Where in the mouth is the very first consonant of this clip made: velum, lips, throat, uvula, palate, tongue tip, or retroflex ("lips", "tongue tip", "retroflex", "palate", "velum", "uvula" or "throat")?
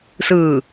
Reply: tongue tip